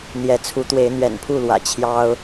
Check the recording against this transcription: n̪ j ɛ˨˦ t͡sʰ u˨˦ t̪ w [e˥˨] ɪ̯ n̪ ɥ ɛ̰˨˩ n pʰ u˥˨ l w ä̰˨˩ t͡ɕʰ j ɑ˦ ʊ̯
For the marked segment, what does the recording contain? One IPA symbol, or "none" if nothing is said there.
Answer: e˨˦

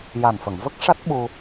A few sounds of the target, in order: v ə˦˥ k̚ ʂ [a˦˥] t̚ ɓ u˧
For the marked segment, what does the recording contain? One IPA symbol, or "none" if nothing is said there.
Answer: a˦˥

